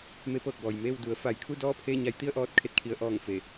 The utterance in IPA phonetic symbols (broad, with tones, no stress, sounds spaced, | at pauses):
m e˧˥ p ɤː˧˩ k̚ b ɔː˩ j m eː˥˨ w d u˩˧ ə̯ f a˩˧ j kʰ u˥˨ d ɔː˥˨ pʰ eː˥˨ ɲ a˧ j t̪ i˥˨ ə̯ ʔ ɔː˧ t̚ kʰ e˧ t̚ kʰ i˩˧ ə̯ ʔ ɔː˧˩ ŋ f e˧˩